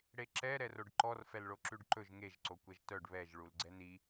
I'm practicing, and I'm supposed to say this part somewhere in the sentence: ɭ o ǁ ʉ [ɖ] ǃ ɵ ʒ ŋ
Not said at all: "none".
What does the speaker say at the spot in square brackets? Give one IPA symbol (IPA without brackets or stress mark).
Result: ɖ